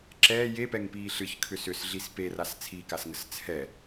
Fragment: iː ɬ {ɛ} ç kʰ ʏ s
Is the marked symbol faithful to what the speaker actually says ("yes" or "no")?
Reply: no